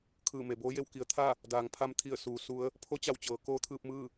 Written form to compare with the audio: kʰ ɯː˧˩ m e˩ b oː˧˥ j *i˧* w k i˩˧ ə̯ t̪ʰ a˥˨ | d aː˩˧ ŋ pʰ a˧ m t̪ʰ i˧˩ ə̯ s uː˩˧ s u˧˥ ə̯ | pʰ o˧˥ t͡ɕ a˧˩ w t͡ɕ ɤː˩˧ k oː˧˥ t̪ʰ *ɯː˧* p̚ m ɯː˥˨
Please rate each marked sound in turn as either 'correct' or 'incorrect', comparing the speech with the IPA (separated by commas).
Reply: incorrect, correct